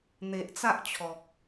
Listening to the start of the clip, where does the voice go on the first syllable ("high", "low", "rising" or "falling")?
low